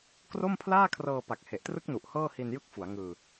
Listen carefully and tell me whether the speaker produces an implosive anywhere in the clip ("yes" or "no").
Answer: no